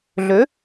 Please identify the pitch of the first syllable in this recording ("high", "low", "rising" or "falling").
rising